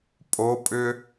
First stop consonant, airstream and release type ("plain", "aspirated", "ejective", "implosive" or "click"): ejective